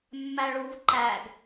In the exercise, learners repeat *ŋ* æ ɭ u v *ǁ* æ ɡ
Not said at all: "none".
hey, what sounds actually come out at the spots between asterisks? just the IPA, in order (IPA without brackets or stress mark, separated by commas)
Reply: mː, ǃ